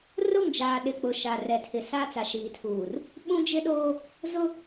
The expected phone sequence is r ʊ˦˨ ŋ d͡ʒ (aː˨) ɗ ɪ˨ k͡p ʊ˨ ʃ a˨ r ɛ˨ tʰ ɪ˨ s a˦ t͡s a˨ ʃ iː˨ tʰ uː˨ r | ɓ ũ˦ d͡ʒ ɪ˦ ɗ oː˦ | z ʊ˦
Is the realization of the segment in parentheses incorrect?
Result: no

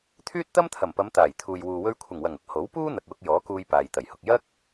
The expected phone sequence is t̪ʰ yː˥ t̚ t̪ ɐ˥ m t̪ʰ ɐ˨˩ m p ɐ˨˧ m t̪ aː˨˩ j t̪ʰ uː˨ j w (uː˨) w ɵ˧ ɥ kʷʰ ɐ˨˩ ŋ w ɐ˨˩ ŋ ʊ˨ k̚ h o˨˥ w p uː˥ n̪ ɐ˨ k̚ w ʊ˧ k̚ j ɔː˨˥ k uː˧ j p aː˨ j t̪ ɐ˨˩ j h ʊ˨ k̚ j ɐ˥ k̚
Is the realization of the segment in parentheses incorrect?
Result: no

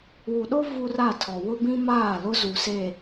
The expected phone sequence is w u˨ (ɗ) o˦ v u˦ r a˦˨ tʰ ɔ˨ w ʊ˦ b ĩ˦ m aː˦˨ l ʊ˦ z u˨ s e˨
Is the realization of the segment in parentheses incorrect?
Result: no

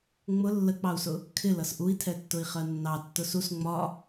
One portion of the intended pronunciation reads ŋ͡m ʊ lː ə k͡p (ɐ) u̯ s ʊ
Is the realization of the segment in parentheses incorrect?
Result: yes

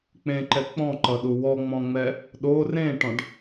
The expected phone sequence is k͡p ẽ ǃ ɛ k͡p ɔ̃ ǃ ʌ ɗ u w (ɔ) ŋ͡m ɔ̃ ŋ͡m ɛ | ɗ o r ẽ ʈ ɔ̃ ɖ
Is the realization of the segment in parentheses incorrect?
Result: no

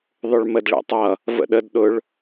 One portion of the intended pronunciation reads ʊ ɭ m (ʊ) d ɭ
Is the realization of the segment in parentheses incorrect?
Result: yes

